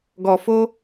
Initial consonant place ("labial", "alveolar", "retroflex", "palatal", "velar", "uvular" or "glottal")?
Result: velar